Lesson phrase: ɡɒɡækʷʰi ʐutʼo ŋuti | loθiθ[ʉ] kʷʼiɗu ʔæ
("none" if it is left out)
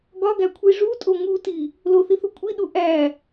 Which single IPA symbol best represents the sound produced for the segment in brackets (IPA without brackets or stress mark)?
u